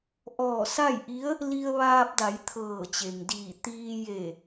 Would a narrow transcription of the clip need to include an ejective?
no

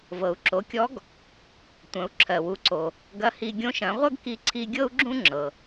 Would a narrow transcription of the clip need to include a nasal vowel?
yes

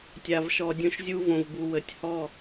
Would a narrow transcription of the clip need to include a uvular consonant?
no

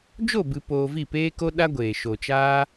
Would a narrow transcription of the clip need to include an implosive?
yes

